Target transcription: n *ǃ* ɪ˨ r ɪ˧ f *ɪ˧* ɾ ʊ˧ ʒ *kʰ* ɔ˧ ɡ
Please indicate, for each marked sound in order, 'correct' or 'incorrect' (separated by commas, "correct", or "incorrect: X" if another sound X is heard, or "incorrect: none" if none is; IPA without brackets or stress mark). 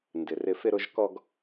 incorrect: d, correct, incorrect: k